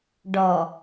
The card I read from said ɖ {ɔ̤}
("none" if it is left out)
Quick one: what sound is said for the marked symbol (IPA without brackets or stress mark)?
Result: ɔ